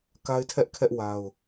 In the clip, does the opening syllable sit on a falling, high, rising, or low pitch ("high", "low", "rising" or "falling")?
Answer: high